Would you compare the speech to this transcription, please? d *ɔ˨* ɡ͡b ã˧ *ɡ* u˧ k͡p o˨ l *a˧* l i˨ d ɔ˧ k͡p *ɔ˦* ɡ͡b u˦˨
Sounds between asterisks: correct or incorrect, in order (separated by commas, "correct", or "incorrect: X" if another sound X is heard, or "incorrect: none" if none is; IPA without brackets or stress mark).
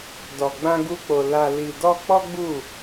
correct, correct, incorrect: a˨, correct